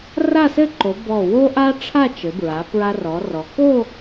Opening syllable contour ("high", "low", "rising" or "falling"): falling